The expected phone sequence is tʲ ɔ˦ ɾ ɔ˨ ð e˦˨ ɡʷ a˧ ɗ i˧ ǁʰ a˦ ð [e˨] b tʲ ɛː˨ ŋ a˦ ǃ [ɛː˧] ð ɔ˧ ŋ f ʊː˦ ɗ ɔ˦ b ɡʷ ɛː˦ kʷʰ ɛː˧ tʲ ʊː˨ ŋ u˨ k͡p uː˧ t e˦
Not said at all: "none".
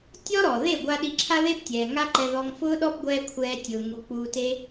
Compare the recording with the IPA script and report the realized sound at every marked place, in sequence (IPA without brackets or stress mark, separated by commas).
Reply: e˦, ɛ˧